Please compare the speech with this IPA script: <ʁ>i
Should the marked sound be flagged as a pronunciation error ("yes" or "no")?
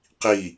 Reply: yes